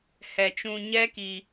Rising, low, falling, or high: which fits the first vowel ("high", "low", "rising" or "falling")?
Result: low